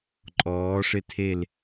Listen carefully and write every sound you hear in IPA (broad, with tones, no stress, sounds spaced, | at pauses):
ǃʼ ɔː˩˧ ʂ ɪ˧˩ tʰ e˧˩ l